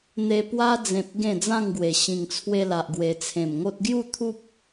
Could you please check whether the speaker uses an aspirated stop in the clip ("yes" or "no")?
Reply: yes